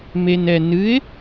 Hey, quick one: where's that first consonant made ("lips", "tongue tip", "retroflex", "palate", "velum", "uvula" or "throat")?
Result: lips